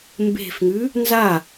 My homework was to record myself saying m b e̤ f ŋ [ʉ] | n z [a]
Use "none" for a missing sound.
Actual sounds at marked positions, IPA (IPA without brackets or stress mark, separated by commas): ʉ, a